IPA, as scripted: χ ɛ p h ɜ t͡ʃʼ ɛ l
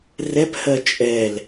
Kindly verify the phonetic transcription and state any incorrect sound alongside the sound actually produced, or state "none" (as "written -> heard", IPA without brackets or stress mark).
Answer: χ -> r